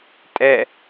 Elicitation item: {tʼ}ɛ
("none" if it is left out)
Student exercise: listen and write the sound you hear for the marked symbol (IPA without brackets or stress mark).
tʼ